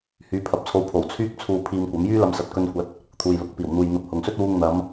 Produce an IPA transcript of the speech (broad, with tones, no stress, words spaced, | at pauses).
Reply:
hyː˨˧pʰɐ˨p̚t͡sʰo˧wpʰo˨˩w t͡sʰyː˥k̚ t͡sʰuː˧ pʰiː˧mkʷɐ˨˥m jyː˥lɐ˧msɐ˨t̚ kɵ˧nkʷɐ˨˥t̚ | t̪ʰuː˨jlʊ˨˥k̚piː˨˩w n̪uː˨jn̪ɐ˧p̚hʊ˨ŋsɵ˥t̚ wuː˧ŋn̪ɐ˨˧m